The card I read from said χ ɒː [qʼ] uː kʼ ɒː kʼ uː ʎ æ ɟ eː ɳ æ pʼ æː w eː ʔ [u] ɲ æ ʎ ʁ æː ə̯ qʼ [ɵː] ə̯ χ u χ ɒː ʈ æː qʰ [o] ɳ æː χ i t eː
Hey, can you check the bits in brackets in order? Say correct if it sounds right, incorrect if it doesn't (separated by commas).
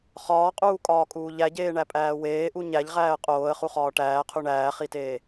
correct, correct, incorrect, incorrect